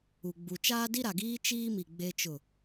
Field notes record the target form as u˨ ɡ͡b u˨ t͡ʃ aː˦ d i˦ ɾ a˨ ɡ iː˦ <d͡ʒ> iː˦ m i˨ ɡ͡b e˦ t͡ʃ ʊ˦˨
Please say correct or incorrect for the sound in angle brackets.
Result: incorrect